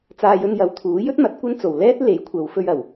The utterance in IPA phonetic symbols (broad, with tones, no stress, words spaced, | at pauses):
t͡saː˧jɵ˧njɐ˨˥w t̪ʰuː˨˥jɵ˥t̚ mɐ˨˥t̚kʷɐ˥n t͡so˨w lɛː˥t̚ le˨˥jkʷʰɐ˨˧w fɵ˧ɥɐ˨˩w